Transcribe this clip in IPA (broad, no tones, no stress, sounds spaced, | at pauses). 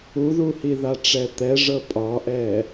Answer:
u ð u h i ð a ʈ͡ʂ ɛ t̪ ɛ ʐ ɤ pʼ ɒ ʔ ɛ